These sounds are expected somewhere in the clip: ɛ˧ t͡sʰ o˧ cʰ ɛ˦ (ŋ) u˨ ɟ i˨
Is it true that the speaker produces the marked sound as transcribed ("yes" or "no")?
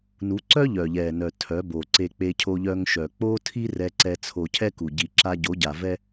no